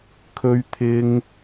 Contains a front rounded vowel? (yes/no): no